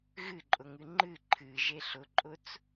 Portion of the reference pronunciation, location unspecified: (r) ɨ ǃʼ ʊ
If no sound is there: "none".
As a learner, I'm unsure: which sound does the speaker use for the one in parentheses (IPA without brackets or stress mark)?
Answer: ɣ